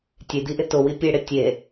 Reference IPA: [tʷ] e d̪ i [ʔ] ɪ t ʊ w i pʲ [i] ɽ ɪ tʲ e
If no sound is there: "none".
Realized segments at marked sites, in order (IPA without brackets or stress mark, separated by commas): tʲ, ʔ, e